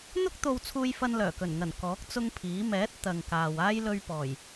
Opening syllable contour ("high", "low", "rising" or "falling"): high